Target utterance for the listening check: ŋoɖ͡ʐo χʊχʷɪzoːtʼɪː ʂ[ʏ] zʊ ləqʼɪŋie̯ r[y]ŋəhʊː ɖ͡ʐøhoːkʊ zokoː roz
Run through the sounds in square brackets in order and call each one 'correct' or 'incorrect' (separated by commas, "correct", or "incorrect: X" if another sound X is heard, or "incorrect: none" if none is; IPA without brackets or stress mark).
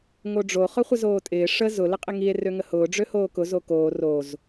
incorrect: ə, incorrect: ø